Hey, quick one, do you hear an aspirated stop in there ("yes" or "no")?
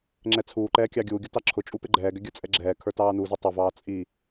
yes